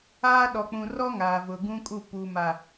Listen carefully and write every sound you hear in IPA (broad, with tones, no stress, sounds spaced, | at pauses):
aː˦ ɗ ɔ˨ k͡p ũ˨ r ɔ˦ ŋ aː˨ v ʊ˨ ɡ ũ˦ kʼ u˦˨ p u˨ m a˨